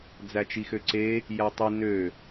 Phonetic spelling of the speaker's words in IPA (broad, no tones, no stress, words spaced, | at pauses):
d͡zæt͡ʃixøǀe | jætˤi nø